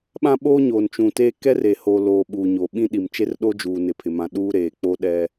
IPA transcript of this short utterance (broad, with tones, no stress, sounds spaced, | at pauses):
ɓ ã˦ ɓ oː˦ ɲ oː˨ n t͡ʃ ũ˨ t eː˦ k ɛ˦ r e˨ h o˨ l oː˨ ɓ uː˨ ɲ o˨ ɓ ĩ˦ ɗ i˨ m t͡ʃ e˦ r ɗ o˦ d͡ʒ uː˨ n ɪ˨ pʰ ɪ˨ m ã˨ ɗ uː˦ ɾ eː˨ k͡p o˦ ɗ ɛ˦